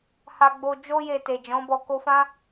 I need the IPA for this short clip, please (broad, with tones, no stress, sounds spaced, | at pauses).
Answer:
h a˧ ɡ͡b o˧ d͡ʒ o˦ j e˧ t e˨ d͡ʒ ɔ̃˨˦ b ɔ˧ k o˧ f ã˦